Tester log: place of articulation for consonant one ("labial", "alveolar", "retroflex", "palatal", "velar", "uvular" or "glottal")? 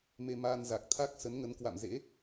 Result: labial